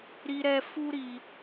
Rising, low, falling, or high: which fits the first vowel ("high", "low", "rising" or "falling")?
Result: high